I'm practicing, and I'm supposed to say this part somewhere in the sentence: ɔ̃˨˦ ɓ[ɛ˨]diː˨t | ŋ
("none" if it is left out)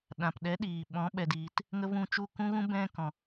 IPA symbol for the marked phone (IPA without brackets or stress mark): ɛ˨